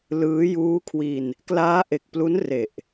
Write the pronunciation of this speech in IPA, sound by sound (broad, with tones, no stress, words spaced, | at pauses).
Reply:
lɯː˦˥ juː˦˥kʰwi˧n | klaː˦˥ʔe˨˩k̚plu˦˥n re˨˩ʔ